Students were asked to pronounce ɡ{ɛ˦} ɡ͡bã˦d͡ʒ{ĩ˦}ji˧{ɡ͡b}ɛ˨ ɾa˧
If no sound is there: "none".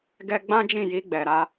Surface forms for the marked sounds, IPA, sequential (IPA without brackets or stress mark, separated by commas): ɛ˦, ĩ˦˨, ɡ͡b